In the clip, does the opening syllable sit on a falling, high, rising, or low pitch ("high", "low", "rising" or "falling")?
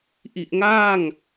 low